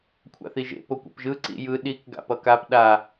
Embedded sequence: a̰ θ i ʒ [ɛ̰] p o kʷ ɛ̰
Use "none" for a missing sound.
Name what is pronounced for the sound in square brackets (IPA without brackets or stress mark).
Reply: ḛ